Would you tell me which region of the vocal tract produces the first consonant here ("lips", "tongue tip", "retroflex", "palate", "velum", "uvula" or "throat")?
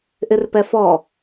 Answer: throat